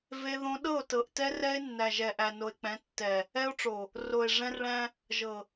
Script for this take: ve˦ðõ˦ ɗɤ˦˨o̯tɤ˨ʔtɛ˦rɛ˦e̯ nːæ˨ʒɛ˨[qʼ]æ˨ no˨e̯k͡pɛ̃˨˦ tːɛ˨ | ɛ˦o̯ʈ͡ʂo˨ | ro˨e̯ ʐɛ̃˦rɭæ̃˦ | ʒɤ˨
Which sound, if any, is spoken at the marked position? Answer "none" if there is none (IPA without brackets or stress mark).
ʔ